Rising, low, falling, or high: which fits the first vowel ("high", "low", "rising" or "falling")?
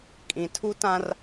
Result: low